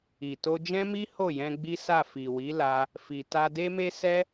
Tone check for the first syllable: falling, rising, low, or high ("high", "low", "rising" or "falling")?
low